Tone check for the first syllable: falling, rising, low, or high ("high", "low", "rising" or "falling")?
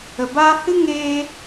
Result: low